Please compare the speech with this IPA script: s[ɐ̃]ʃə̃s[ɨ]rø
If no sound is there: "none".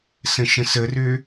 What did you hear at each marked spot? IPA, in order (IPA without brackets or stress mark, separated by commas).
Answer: ə̃, ə